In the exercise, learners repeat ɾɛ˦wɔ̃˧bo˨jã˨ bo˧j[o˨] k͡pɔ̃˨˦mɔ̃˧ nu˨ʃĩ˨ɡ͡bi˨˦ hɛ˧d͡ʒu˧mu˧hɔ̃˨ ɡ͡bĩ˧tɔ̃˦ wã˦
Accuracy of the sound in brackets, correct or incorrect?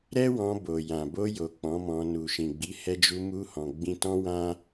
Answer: correct